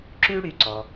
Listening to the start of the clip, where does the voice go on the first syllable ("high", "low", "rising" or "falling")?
high